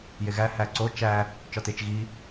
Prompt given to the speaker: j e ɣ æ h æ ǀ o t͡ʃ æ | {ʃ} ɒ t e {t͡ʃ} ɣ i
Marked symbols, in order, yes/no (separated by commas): no, yes